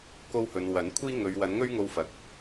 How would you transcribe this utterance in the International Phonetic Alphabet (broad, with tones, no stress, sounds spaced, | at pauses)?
k o˧ w h ɵ˨ n w ɐ˨˥ n kʷʰ iː˥ ŋ ɵ˨˧ ɥ w ɐ˨˥ n ŋ ɵ˥ ɥ ŋ o˧ w f ɐ˨ k̚